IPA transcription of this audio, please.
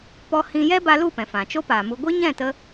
p ɔ˦ h ĩ˦ j ɛ˦ b a˧ l u˦˨ p ɛ̃˨ f ã˨ t͡ʃ o˦ p aː˨ m u˧ ɡʷ i˦ ɲ ɛ̃˦˨ t ə˧

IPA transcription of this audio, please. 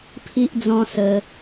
pʰ i˦ ʔ d͡z ɔ̃˦ s ə˧

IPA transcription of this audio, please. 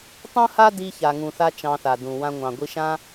tˤ ũ˥ h a˥ d i˧ ç a˩ ŋ ũ˩ θ a˥ t͡ʃ ɑ̃˧ θ a˩ d ũ˩ w ã˧ ŋʷ ɑ̃˩ ɡʷ i˧ ʃ ã˥

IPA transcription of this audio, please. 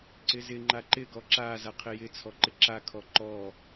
ǀ ɪ z ɪ ŋ͡ǃ a ǃ ɪ ɡ ɔ ǁ a z a qʰ ɪ j ɪ t͡sʰ ɔ ǃ ɪ ǁ a kʰ ɔ ǃ ɔ

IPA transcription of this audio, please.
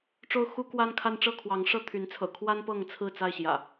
ʈ͡ʂ o˦ ʊ̯ x u˦ k w a˦ n kʰ a˦ n ʈ͡ʂ ɤ˥˨ kʰ w ɑ˨˦ ŋ ʂ ɤ˥˨ t̪ʰ y˨˦ n t͡sʰ ɤ̰˨˩ kʰ w a˦ n p ɤ˥˨ ŋ t͡sʰ ɹ̩˥˨ t͡s a˥˨ ɪ̯ ɕ j ä̰˨˩

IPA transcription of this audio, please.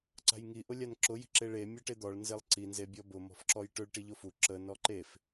ǀ a̤ j ŋ i ʔ ʊ lʲ a n ǁ ʊ j i̤ ǁ e ɭ e mʲ ɔ ʈ e d̪ ɔ ɭ n z e lˠ ǀ i n z e bʲ ɔ b ʊ m ɔ̤ f ǁ ɔ j ʈ ʊ ɭ ʈ i ʎ ʊ f u ǁ ə n ɔ ǃ e f

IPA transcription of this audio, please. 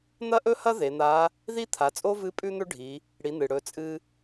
n̪ ɐ˥ ʔ ɵ˥ h ɐ˥ ð e˩˧ n̪ a˧˥ | ð i˥ t̪ʰ a˩˧ t͡sʼ o˥ v ɨ˧˥ pʼ ʉ˥ n̪ ɵ˥ ɖʱ i˩˧ | ɽ i˩˧ n̪ ɨ˩ ɽ ɵ˩˧ t͡sʼ ɨ˧

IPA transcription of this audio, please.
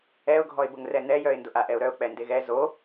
ɛ ʊ̯ ɡʱ ɔ ɪ̯ b ʊ ŋ r ɛ n̪ ɛ j œ ɪ̯ n d ʊ ʔ a ʔ ɛ ʊ̯ ɾ œ ʊ̯ k͡p ɛ n d e ɣ ɛ z o

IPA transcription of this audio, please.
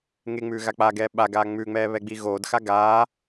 ŋ e ŋ͡m ʉː ɣ a k͡p a ɡ ɛː ɓ a ɡ aː ŋ͡m ʉ ŋ͡m ɛː β ɛ ɡ͡b i ɣ oː d x a ɡ aː

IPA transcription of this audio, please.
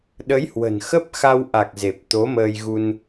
ɗ ə˨˦ j h w ə̤˨˩ n x ə˦˥ p̚ x a˧ w ʔ a˨˩ k̚ z e˨˩ p̚ t̪ o˨˦ m əː˧ j ɣ u˧ n

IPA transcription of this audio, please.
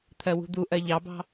t̪ʰ ɜ w ṳ d̪ u ʔ ɜ ʎ ɑ b ɑ̤

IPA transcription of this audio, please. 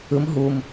ɯ m ɦ u m

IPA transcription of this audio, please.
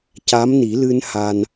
c a˧˥ m n i˨˩˦ l ɨ˧ n h a˧ n

